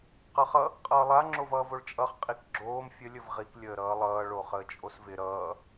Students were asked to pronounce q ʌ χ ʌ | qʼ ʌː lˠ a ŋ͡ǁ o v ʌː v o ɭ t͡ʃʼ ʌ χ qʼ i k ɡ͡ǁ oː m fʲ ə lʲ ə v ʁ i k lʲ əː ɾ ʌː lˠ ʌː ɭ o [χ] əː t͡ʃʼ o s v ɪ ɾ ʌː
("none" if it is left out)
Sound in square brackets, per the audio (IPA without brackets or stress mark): χ